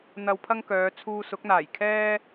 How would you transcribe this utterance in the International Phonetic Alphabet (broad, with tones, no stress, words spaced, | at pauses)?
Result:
n̪ɐ˧wpʰɐ˥ŋkœː˨˧ t͡sʰuː˧sʊ˨˥k̚n̪aː˨˩jkʰɛː˥